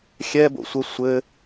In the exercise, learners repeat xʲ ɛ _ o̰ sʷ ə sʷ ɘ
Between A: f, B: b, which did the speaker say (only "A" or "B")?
B